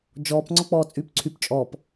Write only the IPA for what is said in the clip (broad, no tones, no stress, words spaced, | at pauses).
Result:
d͡ʒɔːp ŋ͡ǀɔk͡pɔːt͡sʼyːpǀʰyp t͡ʃʼɔp